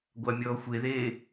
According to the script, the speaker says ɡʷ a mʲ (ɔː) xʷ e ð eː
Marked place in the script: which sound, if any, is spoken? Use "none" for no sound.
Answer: ɔː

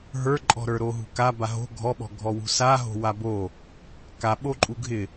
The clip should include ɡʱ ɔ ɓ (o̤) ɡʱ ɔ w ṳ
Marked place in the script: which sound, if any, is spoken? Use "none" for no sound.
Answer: ɔ̤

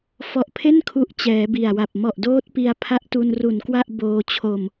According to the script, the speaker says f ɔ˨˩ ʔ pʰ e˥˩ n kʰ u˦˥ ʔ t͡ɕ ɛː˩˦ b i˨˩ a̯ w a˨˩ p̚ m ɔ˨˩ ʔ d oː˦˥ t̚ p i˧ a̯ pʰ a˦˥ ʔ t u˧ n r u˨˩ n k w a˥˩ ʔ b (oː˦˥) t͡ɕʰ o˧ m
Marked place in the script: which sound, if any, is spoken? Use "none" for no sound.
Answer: oː˧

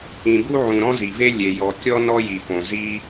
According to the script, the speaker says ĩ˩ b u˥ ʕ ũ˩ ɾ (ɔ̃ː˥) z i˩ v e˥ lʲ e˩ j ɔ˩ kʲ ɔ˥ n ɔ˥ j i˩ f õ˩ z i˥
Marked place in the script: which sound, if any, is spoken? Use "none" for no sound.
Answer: ɔ̃˥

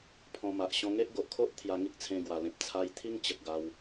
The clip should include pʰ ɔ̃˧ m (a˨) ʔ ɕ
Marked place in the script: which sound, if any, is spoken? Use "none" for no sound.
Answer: a˨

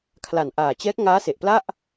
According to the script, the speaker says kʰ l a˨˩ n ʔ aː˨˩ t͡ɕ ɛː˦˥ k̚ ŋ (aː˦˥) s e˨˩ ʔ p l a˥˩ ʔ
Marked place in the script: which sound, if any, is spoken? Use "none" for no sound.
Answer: aː˦˥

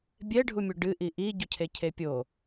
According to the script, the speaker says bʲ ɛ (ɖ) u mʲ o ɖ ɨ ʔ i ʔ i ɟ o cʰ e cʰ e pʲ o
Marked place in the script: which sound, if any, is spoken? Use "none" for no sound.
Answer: ɖʱ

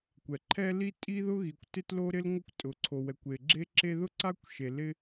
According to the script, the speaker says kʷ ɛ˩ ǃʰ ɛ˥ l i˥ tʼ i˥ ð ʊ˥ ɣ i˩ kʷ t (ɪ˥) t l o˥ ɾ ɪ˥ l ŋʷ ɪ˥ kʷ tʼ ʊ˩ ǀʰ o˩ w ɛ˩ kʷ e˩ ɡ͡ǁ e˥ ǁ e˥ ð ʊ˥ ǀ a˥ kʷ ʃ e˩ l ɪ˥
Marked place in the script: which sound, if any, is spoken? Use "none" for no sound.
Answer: ɪ˥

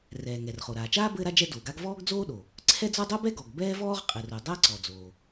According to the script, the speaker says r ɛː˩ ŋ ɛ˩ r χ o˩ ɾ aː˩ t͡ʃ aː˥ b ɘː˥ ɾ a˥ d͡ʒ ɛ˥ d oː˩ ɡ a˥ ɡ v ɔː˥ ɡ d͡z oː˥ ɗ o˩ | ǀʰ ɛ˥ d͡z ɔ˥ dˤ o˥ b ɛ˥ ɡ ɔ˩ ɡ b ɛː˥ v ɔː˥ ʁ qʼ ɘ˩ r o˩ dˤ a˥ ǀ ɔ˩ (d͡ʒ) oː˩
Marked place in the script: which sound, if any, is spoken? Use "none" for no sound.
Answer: d͡z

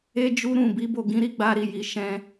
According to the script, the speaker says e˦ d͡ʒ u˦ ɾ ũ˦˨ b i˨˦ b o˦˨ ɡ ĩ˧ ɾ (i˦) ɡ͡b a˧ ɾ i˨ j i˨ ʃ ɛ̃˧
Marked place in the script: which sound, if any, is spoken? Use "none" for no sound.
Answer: i˦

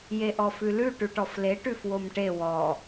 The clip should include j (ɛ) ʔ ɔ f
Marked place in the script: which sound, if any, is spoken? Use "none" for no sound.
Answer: e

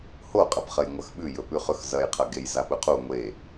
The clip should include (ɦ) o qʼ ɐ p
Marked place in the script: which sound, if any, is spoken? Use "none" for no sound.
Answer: h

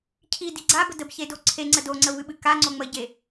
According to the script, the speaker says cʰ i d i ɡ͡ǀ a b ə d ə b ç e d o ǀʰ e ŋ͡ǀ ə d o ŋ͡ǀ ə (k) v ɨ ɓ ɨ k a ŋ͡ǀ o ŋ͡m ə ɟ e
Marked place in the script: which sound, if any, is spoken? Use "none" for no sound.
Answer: none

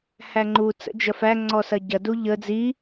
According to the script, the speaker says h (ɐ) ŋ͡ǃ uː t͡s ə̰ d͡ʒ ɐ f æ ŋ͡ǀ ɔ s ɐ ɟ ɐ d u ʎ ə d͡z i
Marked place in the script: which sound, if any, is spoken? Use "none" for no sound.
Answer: æ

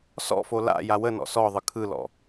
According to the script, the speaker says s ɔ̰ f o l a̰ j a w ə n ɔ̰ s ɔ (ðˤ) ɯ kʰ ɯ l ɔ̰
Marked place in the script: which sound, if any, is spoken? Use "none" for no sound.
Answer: ðˤ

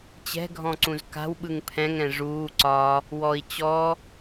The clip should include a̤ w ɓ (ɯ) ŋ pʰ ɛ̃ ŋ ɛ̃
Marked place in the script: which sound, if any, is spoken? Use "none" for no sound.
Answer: ɯ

